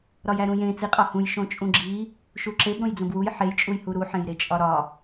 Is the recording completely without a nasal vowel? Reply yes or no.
no